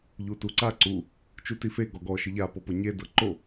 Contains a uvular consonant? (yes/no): no